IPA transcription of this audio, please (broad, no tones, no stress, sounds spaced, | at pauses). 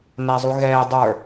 n æ zˤ u ɣ ɛː dˤ ə˞